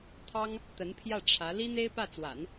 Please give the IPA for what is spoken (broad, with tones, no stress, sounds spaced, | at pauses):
t̪ʰ ɑ˥ ŋ | t̪ ə˧˥ n pʰ j ä˥˩ ʈ͡ʂʰ ä˧˥ l i˥ n̪ e˥ ɪ̯ p ä˥˩ t͡s w a̰˨˩˦ n